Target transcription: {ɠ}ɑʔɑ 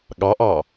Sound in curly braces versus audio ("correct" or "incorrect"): correct